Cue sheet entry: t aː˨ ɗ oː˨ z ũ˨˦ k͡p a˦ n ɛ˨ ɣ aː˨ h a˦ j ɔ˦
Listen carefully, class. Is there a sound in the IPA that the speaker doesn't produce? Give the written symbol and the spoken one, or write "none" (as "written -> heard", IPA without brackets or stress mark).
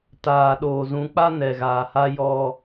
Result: none